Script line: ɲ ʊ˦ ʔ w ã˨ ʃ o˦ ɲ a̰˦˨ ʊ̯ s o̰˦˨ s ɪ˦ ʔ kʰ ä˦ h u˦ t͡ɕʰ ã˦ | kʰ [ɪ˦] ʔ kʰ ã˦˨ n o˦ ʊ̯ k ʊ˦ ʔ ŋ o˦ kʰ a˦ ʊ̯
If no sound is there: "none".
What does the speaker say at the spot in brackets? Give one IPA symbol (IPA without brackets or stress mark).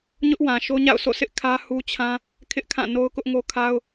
ɪ˦